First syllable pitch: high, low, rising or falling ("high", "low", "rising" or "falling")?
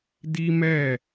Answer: high